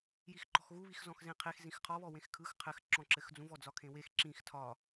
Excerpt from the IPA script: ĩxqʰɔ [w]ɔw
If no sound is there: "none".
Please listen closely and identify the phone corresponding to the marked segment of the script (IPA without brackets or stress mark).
β